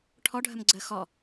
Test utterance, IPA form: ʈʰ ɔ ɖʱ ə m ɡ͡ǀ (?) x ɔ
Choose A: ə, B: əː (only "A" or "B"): B